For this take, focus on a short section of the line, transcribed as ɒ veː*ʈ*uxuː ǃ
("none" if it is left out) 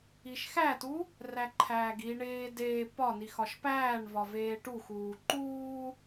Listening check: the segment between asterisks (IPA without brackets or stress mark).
ʈ